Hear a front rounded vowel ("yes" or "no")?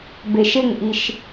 no